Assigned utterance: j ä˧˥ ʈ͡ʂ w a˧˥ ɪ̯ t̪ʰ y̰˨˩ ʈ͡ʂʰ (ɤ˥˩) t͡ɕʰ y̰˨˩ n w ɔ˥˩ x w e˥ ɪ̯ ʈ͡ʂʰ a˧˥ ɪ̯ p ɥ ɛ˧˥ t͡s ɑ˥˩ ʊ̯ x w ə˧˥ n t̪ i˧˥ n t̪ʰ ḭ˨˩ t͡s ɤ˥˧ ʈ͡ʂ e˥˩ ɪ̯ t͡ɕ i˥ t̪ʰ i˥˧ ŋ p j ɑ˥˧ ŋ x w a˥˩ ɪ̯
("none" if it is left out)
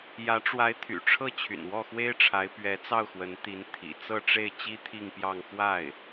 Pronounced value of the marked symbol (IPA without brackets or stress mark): ɤ˥˩